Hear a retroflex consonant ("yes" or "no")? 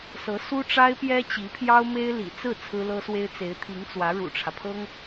yes